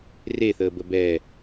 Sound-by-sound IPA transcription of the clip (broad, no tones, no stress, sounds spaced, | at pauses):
r e θ əː b ə b ɛ